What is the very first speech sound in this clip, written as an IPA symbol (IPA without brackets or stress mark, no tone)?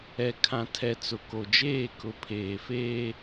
ɛ